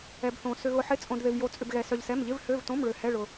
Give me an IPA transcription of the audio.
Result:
ɛ˧ b θ õ˧ s ʏ˧ ɣ ʊ˧ ħ ɪ˧˥˧ t͡sʼ õ˧ d ð ɪ˧ v j o˧ t͡sʼ ʏ˧ b ɣ ɛ˧ s œ˧ ʎ s ɛ˧˥˧ m ʎ ɪ˧˥˧ v h ø˧˥˧ v t õ˧˥˧ m ɭ ø˧ h ɛ˧˥˧ ɭ ʊ˧

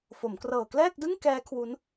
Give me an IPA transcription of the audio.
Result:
f o˩˦ m k r ɤː˨˩ k l ɛː˥˩ k̚ d ɯ˥˩ ŋ k ɛː˦˥ kʰ w u˦˥ n

